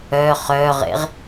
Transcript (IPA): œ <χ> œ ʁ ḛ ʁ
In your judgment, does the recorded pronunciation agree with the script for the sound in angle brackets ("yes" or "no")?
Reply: yes